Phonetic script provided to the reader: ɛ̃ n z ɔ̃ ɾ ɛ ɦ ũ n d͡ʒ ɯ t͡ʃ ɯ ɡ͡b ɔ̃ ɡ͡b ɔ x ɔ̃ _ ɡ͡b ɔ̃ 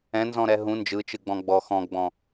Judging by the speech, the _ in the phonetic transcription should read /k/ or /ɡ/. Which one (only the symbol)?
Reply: ɡ